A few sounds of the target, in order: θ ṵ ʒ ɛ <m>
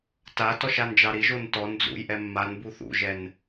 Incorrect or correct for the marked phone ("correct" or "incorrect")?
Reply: incorrect